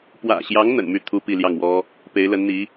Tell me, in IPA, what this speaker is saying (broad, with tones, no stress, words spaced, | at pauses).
pwä̰˨˩ɕjɑ˧˥ŋ n̪ə̰˨˩nmy˥˩ t̪ʰu˥pi˥˧ ljɑ˥˩ŋwɔ˥ | pe˧˥ɪ̯lə˧˥nn̪i˧˥